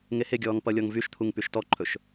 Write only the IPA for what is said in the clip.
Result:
ŋeheɡʲɔːŋ pʌlʲɔŋvyʃt̪ʰuŋ pyʃtɔǃʰɵʃ

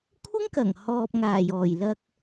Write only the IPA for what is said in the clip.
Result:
kʷʰɪ˥ŋkɐ˨˩ŋhɔː˨p̚ ŋaː˨˩jɔː˨˩jlɐ˧k̚

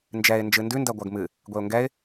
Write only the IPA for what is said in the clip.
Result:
nd͡ʒɛɪ̯ nd͡ʒɨndʉ ndɜɡʷɜɡmɨ | ɡʷeʊ̯ŋɡɛɪ̯

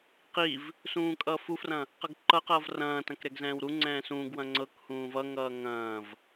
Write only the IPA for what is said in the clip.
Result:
qiv | sũːkʼʌːfufrɐ̃ | qʌɡǃʌqʌːv rɐ̃ːtɐ̃k ɾɛɡzɛ̃ːwɾuŋ͡ǀɛ̃ː sũːɡwɐ̃ ŋ͡ǀɤkhũː vʌŋʌː ŋɐ̃ːv

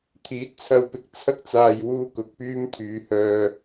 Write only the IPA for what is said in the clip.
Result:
t̪ʰiː˨˥t̚t͡sʰɐ˧w pɪ˨k̚t͡sʰɐ˥k̚t͡saː˨jwuː˧ kʊ˨k̚pyː˥m t̪ʰyː˨˧hœː˧

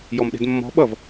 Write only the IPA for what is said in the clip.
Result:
jɔmɗe̤dmːɔ̤ ɓʌv

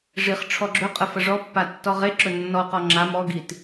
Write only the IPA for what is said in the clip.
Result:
ʐiχ ʈ͡ʂʰɔɡ͡ǁɵqʼə fəʐɔpːa tːɔʁeǁɵ nːɔqɔ ŋ͡ǁam ɔɡit

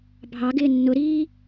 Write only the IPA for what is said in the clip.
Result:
bʱɑɡɪː nːʊɾiː

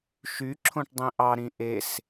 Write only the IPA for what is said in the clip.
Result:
ʃyǁʰõʈ dˤĩʔɑɾĩ ʔes

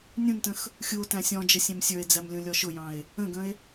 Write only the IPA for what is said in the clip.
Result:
nʲũntə̃x | xʲuo̯tæ̃ sʲɔ̃d͡ʒə sʲɛ̃msʲə˞e̯d͡zæm lʲũlʲɔʃʊjɑ̃e̯ | ə̃ɡə̃e̯

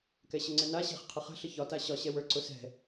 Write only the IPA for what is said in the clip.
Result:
kɛɕəŋ͡ǀɛna ɕɛ̤χqʰəχə̤ ɬəçɒ taɕɒ ɕɛwə˞ ǀʊsɛ̤

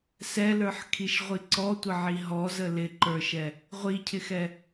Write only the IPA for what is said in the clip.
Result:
sɛlə˞ħkʰiʃʁʷi ǀɔtʷəʕi ɦɔzə lɪǃə˞ʃɛ | ʁʷicʰɪxɛ

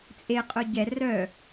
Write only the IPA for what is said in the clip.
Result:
t͡sʼeqʼʊ ɟɛ rœ

